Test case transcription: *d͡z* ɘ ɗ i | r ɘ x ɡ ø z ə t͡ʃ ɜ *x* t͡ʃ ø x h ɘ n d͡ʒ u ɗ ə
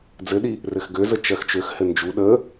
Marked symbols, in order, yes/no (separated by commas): yes, yes